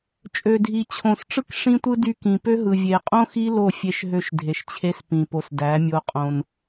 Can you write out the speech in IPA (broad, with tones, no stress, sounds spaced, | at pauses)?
t͡ʃʼ ø˨ dʱ i˨ t͡ɕʰ õ˨ s ʈ͡ʂ ɯ˦ k ʂ ĩ˦ tʷ ɯ˦ d y˦ k ĩ˨ p ø˦ ɦ ɯ˨ vʲ e˨ qʼ õ˦ x i˦ l o˦˨ fʲ e˧ ʃ ɦ ø˧ ʃ dʱ e˨ ʃ t͡ɕʰ e˦ s p ĩ˨ p o˨ s d æ˨˦ mʲ o˧ qʼ õ˧ n